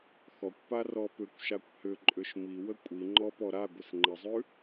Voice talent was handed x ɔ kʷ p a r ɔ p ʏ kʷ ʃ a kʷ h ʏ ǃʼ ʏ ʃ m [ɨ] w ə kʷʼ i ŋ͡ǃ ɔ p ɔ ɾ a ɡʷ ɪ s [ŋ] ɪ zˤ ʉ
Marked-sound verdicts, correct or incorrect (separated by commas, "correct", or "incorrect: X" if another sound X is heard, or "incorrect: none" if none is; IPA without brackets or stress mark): incorrect: i, incorrect: ŋ͡ǃ